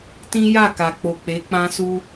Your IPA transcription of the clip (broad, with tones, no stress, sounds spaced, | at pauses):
t ĩ˦ j a˦˨ k a˨ k͡p o˨ k͡p e˨˦ k͡p ã˦ s u˦